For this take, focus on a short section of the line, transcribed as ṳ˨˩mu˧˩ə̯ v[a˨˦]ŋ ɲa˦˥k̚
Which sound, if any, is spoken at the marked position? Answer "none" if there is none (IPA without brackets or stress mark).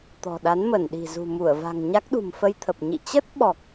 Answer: a̤˨˩